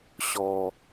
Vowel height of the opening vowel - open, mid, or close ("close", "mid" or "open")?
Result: mid